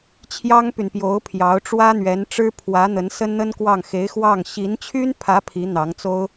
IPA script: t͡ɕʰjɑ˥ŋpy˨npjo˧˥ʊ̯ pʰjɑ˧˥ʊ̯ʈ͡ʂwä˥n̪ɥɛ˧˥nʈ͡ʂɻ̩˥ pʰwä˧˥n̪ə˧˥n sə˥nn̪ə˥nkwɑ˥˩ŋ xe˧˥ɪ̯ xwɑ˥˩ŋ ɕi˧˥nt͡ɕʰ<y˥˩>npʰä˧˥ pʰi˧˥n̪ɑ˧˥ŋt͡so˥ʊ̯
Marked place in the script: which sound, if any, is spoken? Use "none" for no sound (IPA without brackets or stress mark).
y˥